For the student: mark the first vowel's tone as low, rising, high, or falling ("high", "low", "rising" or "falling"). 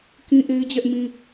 high